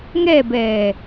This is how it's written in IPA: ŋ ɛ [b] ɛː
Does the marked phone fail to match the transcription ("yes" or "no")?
no